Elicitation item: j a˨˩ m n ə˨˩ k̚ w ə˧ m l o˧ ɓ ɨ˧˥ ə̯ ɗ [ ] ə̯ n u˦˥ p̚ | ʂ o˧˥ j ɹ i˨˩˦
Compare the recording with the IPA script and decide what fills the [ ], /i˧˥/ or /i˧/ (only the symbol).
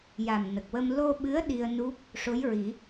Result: i˧